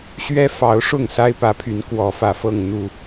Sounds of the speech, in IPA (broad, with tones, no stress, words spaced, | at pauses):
ɕɥɛ˦fɑ˨˦ʊ̯ʂʊ˥˨ŋ sa˦ɪ̯pä˨˦pʰy˨˦n kwɔ˨˦fä˨˩fɤ˥˨ŋ n̪u˨˩